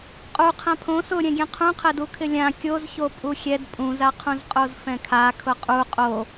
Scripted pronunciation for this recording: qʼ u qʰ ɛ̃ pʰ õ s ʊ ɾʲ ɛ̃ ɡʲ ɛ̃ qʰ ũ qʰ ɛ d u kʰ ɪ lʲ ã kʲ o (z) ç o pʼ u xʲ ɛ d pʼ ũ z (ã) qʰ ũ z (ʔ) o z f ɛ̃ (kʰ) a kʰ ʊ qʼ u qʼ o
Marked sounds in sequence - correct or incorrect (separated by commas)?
correct, incorrect, incorrect, correct